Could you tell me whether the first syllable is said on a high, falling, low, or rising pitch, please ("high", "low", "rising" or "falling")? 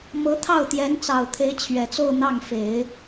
rising